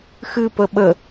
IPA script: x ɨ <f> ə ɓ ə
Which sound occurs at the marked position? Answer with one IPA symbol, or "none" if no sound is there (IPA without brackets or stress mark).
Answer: p